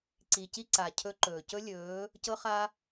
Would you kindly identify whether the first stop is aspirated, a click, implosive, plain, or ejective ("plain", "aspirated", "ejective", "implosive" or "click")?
click